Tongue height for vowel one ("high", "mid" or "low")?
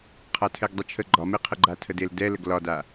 low